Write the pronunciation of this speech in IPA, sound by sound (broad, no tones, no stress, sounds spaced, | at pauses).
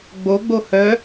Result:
ɡ͡b o ɡ͡b o h œ